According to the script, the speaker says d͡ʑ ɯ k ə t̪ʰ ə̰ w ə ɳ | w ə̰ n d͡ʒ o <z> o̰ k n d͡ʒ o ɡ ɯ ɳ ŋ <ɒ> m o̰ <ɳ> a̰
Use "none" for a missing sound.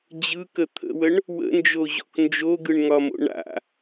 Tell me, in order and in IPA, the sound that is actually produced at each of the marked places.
ʑ, ɒ, ɳ

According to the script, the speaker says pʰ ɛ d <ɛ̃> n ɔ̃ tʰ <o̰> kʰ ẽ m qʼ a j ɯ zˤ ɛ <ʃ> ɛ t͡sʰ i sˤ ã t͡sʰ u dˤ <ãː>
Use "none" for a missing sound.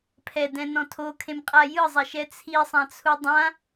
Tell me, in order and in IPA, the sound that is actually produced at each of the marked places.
ɛ̃, o, ʃ, ã

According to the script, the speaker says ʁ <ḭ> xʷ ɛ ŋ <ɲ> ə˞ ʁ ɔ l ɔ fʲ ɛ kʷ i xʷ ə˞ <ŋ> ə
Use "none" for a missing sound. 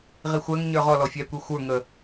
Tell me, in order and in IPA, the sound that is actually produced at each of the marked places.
i, ɲ, ŋ

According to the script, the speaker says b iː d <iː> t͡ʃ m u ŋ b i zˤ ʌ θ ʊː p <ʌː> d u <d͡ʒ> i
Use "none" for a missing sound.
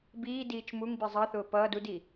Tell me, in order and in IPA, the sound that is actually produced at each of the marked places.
iː, ʌː, d

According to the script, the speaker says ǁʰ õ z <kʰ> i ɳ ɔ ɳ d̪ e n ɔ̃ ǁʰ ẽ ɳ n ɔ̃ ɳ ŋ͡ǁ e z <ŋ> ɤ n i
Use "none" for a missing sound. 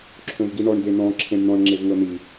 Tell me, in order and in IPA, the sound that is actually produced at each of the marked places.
ɡ, ŋ

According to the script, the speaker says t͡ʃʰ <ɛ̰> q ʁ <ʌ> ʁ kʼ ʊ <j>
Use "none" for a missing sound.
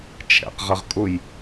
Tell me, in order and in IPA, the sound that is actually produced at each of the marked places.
ɛ̰, ʌ, j

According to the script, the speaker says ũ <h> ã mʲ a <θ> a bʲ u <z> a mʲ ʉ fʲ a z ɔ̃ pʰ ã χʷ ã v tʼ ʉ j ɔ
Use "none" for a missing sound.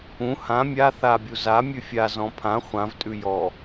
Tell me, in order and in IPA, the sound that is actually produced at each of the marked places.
h, θ, z

